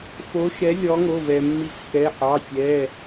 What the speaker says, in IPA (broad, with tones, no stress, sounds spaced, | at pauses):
f o˨˦ ʃ ɛ˨˦ lʲ ɔ˨˦ ŋ o˩˧˩ v ɛ˩ mː i˨˦ kː ɛ˩˧˩ ħ ɑ˩˧˩ sʲ ɛ˩˧˩